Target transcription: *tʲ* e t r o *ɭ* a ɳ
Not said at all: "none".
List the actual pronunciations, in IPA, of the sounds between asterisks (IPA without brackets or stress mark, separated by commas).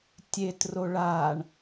tʲ, ɭ